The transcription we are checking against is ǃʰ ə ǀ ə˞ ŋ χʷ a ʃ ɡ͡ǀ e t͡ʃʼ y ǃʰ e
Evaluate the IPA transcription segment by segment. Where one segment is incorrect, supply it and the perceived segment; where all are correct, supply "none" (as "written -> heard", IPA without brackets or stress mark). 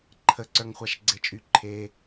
none